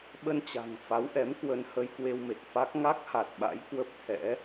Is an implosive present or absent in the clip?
present